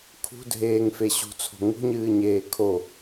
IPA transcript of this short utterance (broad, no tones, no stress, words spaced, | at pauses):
kʰṳdʱeːŋfe ɕṳt͡sʰo̤ ŋṳɲɨːɲeː kʰo